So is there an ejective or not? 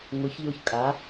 yes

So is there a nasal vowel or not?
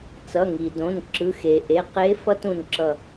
yes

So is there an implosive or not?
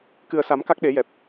yes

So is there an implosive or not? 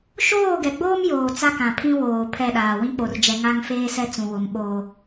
yes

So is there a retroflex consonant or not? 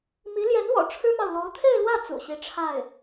yes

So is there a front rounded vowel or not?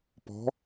no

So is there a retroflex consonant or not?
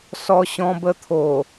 no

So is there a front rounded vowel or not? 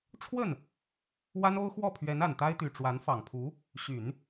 yes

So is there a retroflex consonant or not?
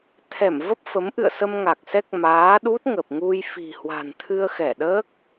no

